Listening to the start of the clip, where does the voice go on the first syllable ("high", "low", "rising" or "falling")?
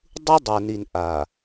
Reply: high